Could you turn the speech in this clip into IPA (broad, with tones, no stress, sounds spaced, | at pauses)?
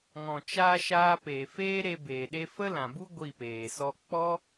ŋ ɔ̃˨ t͡ʃ aː˧ ʃ aː˧ p eː˨ f eː˦ ɾ e˧ b eː˨ ɗ e˧ f ə˦ l ã˨ b u˦ ɡʷ i˦˨ p eː˨ s ɔ˦ k͡p ɔ˦